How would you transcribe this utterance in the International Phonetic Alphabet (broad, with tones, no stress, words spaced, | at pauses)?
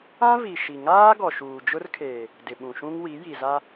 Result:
ã˦vi˨ ʃi˨ŋaː˦ ɡɔ˨ʃuː˨d͡ʒʊ˦r kʰeː˨ | dɪ˨ɓũ˨ʃũ˦ŋwi˨˦ ji˨za˦